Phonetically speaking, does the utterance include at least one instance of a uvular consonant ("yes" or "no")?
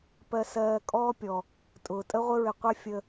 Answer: yes